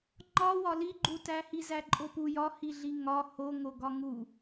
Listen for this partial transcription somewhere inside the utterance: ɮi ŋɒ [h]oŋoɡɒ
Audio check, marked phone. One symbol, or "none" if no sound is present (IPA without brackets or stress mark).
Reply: h